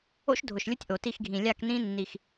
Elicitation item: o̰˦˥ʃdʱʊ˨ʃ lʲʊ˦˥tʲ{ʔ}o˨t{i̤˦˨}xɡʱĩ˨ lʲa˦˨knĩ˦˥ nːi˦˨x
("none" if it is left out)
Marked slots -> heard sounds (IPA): ʔ, i˦˨

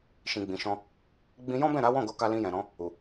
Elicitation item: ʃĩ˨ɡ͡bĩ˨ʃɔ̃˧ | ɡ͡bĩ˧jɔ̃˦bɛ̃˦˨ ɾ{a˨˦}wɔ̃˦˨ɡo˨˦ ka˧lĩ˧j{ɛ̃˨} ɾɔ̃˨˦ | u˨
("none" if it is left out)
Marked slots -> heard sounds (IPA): a˨˦, ɛ̃˨

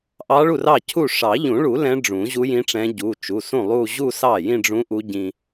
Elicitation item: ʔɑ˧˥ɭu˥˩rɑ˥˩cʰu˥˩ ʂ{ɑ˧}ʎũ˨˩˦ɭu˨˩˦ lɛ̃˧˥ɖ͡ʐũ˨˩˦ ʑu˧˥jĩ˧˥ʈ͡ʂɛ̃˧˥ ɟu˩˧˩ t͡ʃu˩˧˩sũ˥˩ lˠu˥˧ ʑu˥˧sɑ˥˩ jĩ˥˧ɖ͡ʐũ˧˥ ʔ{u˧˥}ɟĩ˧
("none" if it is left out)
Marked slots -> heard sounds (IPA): ɑ˨˩˦, u˧˥

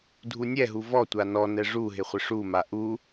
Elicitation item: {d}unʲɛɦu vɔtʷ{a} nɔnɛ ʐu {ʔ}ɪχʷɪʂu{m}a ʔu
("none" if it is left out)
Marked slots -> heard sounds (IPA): dʱ, a, ɦ, m

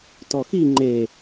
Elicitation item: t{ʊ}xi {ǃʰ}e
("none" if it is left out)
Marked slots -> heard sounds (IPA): ɔ, ŋ͡ǃ

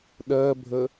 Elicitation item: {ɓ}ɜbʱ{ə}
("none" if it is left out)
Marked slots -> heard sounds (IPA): ɗ, ə

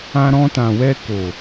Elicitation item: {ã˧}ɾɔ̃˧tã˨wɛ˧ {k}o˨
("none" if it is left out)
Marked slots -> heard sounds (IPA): ã˧, k

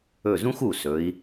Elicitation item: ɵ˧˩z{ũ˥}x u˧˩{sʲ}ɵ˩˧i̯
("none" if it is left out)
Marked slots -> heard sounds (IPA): ũ˥, s

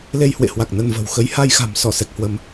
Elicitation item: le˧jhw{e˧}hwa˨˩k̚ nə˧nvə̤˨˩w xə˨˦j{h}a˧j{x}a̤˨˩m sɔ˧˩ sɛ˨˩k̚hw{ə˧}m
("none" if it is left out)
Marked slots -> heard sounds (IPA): ḛ˧˨, h, x, ə˧

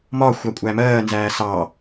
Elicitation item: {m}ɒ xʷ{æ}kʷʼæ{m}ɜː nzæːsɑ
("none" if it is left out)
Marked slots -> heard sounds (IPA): m, æ, m

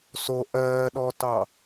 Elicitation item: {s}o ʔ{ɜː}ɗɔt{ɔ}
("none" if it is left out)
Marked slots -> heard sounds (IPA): s, ɜː, ɑ

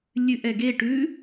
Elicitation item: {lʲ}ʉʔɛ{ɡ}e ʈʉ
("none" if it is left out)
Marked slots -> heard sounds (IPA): lʲ, ɡ

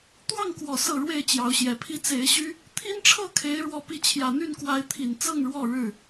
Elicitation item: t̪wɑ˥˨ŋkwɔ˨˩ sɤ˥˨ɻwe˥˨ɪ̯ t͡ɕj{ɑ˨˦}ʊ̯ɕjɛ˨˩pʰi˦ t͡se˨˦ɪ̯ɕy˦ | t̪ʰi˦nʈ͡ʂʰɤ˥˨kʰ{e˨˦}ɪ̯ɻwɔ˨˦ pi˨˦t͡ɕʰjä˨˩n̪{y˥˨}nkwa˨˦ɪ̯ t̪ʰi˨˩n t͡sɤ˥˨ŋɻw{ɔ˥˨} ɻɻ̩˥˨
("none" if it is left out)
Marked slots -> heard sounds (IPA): ɑ˨˦, e˨˦, y˥˨, ɔ˥˨

